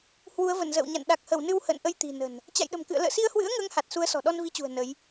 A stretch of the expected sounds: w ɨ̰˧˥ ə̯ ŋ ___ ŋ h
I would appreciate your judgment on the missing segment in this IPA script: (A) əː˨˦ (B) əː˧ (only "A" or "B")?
A